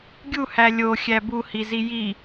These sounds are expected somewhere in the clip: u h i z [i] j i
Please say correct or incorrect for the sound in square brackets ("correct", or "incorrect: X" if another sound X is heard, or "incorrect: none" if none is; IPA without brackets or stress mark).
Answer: correct